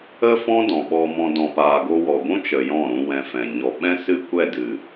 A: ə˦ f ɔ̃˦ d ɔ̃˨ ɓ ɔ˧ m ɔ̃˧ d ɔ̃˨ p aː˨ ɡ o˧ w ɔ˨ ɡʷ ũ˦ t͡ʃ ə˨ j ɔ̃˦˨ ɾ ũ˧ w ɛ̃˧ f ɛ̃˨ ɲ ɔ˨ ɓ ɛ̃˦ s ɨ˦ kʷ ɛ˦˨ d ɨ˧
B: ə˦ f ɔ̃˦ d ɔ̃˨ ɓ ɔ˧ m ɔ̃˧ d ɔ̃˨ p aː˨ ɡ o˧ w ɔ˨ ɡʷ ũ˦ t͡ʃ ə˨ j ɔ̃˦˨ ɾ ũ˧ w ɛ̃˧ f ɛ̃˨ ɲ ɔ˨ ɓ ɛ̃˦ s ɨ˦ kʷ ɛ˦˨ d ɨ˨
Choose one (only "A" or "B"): B